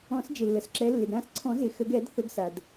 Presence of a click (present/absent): present